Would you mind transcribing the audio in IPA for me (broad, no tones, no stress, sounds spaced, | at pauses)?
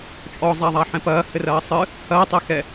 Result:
t͡ʃʼ ɔ zˤ a ðˤ a ħ ɛ̃ p ɐː h ɘ r ɐː sˤ ɨ | h ɐː tˤ ɛ x ɛ